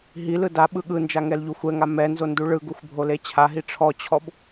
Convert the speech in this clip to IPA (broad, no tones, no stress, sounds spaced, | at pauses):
ɦ i l ɯ d a ɓ ɯ ɠ ɯ n d͡ʒ a ŋ ɛ l ʎ u xʷ ɛ ŋ a m ɛ n z o n d u ɭ ɯ ɡ u xʷ bʱ o l e t͡ɕʰ a ɦ i ʈ͡ʂʰ ɔ t͡ɕʰ ɔ b